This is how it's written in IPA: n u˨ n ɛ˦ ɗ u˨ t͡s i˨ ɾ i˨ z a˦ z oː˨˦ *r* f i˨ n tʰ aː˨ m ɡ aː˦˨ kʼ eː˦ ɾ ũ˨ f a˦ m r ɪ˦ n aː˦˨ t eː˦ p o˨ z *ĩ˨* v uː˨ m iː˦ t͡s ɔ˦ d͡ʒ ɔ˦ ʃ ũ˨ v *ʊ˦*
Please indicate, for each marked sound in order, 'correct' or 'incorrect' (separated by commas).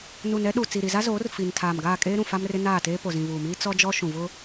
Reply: correct, correct, correct